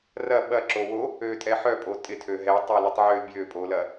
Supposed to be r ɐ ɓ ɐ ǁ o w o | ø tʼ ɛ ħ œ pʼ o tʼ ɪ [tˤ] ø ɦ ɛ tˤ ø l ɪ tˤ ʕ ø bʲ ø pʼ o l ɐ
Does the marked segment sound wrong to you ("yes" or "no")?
yes